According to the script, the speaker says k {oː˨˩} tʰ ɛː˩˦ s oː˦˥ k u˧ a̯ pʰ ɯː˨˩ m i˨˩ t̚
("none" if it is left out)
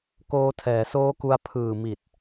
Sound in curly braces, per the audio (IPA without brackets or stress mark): oː˧